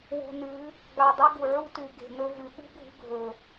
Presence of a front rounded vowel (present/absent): absent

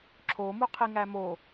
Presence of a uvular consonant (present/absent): present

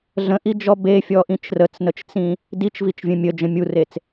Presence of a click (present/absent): absent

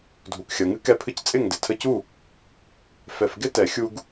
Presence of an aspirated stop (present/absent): present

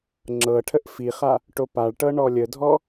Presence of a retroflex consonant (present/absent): present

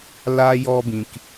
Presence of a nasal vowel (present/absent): present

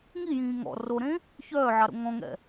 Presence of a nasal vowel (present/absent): present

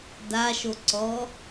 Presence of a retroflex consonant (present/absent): absent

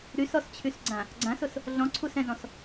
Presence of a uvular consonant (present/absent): absent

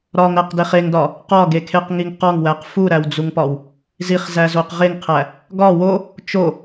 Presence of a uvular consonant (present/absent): present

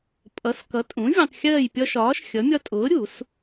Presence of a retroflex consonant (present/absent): absent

